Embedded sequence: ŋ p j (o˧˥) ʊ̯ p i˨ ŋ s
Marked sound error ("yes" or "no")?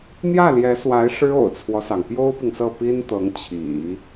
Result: yes